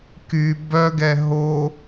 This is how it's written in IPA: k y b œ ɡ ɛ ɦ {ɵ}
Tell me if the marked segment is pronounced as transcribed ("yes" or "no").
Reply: no